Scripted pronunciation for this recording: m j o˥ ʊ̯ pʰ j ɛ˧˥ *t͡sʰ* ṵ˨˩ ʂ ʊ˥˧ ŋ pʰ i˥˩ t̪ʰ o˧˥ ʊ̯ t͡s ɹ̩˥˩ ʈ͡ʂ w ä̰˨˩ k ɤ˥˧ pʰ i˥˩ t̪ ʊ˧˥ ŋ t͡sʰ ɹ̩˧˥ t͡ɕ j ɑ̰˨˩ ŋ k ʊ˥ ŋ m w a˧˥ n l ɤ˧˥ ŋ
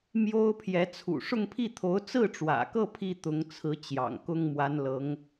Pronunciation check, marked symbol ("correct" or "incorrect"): correct